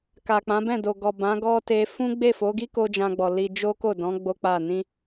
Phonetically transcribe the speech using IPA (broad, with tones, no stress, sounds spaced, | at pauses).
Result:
k a˨ k͡p ã˨˦ b ɛ̃˦˨ d o˨ ɡ ɔ˨ b ã˨˦ ɡ ɔ˦ t e˧ f ũ˦ ɡ͡b e˦˨ f o˨˦ ɡ i˦ k o˦ d͡ʒ ã˧ ɡ͡b ɔ˨ l i˧ d͡ʒ o˦ k o˦˨ d ɔ̃˨˦ ɡ͡b o˦ k͡p a˦˨ n ĩ˧